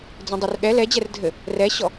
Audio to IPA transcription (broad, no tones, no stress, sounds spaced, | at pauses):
d͡z ɛ̃ dˤ ø r ɠ ɛ l ɛ d͡ʑ ɛ r dʱ ɘ | r ɛ ɕ ɔ